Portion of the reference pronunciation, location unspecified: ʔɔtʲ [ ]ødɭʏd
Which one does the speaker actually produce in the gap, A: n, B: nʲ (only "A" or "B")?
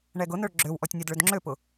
B